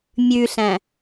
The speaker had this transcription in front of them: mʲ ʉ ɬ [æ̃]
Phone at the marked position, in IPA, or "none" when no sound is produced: æ̃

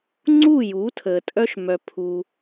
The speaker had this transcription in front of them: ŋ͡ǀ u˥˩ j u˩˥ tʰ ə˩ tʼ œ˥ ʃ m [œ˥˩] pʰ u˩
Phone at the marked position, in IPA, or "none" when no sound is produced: œ˩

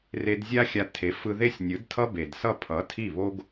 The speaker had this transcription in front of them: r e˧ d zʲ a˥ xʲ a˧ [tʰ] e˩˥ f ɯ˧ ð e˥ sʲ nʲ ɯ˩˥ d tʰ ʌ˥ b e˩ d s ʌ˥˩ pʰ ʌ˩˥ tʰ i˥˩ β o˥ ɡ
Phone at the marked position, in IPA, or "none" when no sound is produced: tʰ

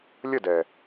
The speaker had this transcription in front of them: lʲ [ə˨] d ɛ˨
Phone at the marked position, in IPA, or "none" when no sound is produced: ə˦˨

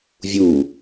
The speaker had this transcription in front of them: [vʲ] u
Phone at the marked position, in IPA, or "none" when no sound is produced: vʲ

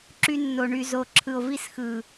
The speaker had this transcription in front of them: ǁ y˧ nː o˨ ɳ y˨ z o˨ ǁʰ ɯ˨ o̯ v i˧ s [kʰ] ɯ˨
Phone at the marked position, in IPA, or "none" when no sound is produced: x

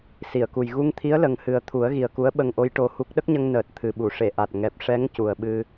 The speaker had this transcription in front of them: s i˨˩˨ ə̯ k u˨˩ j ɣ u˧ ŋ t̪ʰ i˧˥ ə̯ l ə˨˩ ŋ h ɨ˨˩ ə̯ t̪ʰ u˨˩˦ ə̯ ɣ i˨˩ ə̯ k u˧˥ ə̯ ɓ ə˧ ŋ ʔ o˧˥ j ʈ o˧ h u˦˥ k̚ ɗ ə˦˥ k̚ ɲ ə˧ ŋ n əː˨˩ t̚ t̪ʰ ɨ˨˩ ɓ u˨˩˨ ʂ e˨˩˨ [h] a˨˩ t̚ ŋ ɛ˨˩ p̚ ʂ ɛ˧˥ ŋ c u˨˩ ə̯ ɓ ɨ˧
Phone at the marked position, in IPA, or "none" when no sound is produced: ʔ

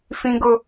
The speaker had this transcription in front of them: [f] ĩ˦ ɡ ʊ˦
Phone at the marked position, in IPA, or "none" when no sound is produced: f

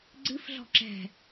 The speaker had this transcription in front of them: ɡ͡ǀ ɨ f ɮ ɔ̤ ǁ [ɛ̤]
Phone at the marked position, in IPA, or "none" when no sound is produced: ɛ̤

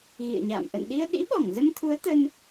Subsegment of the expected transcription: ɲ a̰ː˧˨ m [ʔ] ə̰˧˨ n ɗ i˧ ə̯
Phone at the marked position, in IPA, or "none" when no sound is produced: ʔ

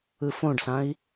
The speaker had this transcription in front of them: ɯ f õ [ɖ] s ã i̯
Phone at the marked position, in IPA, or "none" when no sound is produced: ɖ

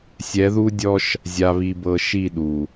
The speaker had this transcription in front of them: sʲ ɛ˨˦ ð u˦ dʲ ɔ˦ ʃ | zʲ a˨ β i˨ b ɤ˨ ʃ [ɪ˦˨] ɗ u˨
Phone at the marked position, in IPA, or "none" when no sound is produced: i˦˨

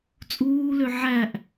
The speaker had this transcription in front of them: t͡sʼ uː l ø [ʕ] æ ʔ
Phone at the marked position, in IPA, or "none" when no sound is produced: ʕ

